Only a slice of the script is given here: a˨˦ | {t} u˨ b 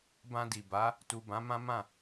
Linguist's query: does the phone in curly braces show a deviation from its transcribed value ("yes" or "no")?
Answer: no